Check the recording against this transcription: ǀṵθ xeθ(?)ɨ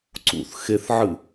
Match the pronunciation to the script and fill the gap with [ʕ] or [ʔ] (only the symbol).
ʕ